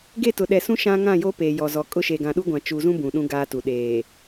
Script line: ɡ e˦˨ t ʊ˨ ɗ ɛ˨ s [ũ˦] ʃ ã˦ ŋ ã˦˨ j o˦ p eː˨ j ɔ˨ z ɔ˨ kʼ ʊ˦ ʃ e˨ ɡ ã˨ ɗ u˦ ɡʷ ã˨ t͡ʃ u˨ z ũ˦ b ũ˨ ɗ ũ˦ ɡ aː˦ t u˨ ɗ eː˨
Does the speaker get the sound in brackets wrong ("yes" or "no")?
no